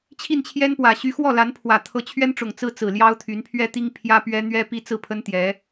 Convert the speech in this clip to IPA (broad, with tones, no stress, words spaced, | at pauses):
t͡ɕʰi˥˩nt͡ɕʰjɛ˥npwä˨˩ ɕy˧˥xwɔ˥˩la˧˥npʰwä˨˩ t̪ʰɤ˧˥t͡ɕʰɥɛ˥nʈ͡ʂʊ˨˩ŋ t͡sɹ̩˥t͡sɹ̩˨˩ ljɑ˥ʊ̯t̪ʰy˧˥n pʰɥɛ˥t̪i˥ŋ pʰjä˥pɥɛ˥ n̪ɥɛ˥ pi˥t͡sɹ̩˥˩pʰə˥n t̪jɛ˧˥